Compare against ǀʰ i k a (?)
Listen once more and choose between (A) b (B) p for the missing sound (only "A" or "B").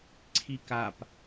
B